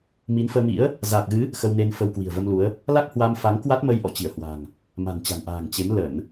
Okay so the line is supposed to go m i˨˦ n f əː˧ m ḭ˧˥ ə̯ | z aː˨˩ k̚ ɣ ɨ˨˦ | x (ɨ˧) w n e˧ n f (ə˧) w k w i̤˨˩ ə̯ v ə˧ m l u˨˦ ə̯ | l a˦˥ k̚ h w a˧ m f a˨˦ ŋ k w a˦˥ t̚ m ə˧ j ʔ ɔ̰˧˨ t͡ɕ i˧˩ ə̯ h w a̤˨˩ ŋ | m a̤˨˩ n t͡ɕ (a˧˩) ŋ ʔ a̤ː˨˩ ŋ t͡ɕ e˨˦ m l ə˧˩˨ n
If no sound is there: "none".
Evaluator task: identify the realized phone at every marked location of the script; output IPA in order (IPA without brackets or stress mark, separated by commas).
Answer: ə˧, ə˧, a̤˨˩